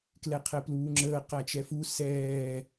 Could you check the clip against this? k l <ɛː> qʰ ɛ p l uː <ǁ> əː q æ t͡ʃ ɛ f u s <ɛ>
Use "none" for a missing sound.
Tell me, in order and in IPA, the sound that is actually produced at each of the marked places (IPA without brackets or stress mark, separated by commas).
ɛ, ŋ͡ǁ, ɛː